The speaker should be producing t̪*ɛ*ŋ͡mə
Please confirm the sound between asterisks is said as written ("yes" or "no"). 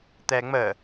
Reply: yes